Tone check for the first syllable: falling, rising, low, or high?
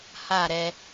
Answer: falling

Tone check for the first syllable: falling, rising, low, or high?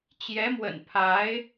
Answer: rising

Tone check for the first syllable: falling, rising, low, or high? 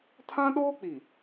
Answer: high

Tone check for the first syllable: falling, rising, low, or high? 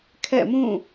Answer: falling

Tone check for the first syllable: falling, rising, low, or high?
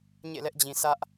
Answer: falling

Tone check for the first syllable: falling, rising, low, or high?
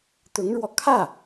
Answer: rising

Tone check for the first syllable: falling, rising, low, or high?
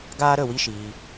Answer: high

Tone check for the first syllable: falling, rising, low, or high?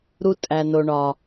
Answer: high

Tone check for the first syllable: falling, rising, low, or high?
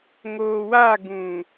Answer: low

